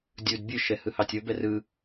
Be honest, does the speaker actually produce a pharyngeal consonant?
no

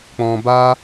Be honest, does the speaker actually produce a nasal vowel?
yes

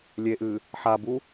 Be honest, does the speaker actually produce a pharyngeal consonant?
yes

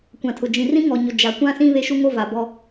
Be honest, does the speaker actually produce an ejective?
no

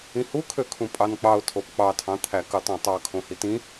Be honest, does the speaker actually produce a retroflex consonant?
no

